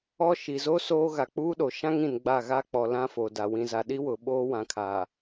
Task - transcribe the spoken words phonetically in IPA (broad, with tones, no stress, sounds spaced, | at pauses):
ɔ˦ ʃ i˨ z o˦ s oː˦ ɣ a˨ k͡p uː˦ ɗ o˨ ʃ ã˦ ŋ ĩ˨ n ɡ͡b a˦˨ ɣ a˦ k͡p ɔ˨ l ã˦ f o˨ d a˨ w ĩ˨ z a˨ ɗ i˦ w ʊ˨ ɓ oː˦ w ã˨ kʰ aː˨